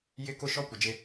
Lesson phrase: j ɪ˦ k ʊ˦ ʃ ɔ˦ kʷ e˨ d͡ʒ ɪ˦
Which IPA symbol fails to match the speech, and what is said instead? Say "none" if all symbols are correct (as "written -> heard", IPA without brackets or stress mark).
none